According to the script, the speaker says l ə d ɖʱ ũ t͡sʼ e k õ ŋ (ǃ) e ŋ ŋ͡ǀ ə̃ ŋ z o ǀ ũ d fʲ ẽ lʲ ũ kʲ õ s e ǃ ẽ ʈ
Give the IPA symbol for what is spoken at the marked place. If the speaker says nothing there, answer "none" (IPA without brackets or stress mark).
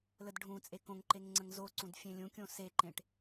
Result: ǃ